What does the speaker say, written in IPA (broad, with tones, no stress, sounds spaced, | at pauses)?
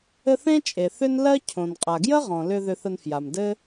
ɘ˦ θ ẽ˥ t͡ʃʼ e˩ θ ʏ˦ n l ɜ˦ cʰ õ˩ n qʼ a˩ ɡ j ə˥ ʁ ɔ̃˩ l ʏ˨ ð ʏ˨ θ ə˨ n f j a˩ m d ɘ˦